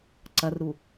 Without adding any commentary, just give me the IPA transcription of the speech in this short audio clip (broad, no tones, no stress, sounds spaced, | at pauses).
ǀ ɐ r ɾ u